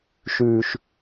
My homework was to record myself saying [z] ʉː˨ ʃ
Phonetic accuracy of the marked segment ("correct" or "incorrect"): incorrect